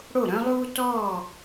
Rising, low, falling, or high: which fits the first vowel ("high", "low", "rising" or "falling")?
falling